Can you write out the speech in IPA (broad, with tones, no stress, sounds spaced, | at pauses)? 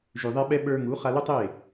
ʒ ʉ˨ ðˤ ɛ˧ ɓ ɛ˧ ɓ ə˞˧ ŋ u˨˦ χ a˧ l ʊ˦ tˤ e˦˨